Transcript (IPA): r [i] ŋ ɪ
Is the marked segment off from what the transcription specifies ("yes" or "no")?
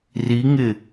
no